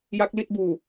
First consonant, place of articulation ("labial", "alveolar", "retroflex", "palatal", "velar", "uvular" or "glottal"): palatal